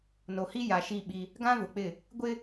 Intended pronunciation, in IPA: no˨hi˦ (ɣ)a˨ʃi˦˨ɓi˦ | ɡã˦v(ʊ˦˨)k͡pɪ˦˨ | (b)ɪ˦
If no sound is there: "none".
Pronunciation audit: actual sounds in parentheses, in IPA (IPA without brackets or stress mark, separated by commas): j, ʊ˨, ɡʷ